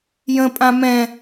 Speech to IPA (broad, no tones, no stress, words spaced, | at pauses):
jə̃pʼã mɛ̃